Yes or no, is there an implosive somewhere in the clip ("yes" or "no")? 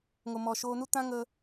no